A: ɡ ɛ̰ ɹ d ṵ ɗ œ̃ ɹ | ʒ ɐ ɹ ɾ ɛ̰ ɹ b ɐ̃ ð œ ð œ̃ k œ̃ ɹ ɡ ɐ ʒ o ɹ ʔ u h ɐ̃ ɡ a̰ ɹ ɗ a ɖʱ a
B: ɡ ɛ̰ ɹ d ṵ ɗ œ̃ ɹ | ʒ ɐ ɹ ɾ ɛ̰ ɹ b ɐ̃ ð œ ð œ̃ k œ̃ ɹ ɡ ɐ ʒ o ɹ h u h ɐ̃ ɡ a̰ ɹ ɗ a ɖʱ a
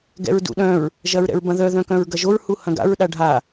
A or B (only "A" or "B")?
B